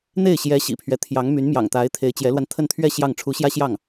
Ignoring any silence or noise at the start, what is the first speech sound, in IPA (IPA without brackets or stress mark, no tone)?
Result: n̪